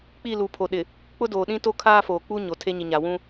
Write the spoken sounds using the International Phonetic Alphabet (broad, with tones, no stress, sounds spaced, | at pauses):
k͡p i˦˨ l u˨˦ pʰ o˨ ɗ ɪ˨ | k͡p ʊ˦ d oː˨ ɗ ĩ˦ t o˦ kʰ aː˦ f oː˨ k͡p u˦ ɲ o˨ tʰ e˦ ɲ i˨ ɲ a˨ w ũ˦